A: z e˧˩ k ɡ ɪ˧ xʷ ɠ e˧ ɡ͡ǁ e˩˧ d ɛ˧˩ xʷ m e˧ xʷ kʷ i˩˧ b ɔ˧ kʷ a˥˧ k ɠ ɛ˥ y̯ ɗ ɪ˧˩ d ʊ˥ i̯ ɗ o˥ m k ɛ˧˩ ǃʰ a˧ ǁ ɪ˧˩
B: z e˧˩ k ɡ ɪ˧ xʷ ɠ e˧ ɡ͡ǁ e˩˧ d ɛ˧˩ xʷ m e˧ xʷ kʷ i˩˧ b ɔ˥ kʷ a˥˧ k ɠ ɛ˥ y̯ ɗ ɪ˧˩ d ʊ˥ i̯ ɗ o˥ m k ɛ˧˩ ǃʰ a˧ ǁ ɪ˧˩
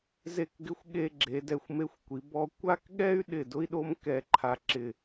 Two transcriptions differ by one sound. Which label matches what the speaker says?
A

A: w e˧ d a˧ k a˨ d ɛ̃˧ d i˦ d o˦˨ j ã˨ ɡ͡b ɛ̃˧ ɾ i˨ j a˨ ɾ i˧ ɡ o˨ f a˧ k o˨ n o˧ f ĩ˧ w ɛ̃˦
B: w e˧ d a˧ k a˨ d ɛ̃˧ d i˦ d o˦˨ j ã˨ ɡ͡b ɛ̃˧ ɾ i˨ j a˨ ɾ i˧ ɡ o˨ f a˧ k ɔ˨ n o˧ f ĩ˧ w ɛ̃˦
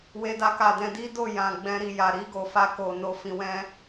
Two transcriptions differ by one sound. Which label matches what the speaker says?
A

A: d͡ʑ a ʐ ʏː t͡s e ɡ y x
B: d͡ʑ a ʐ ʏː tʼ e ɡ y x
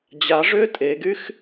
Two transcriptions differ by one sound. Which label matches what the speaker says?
B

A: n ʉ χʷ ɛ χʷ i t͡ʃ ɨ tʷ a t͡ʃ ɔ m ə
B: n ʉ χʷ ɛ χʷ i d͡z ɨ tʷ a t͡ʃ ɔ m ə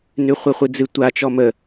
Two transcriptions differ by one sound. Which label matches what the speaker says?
B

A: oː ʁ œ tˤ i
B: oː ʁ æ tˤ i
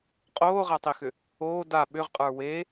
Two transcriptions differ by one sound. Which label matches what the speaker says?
B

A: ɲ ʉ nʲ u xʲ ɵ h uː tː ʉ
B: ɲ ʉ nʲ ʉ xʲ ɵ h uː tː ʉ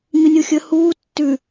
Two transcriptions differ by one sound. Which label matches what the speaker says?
A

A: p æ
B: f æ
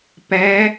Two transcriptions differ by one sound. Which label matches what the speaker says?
A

